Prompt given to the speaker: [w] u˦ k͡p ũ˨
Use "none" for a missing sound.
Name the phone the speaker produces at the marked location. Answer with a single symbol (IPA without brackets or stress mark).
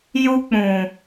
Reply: j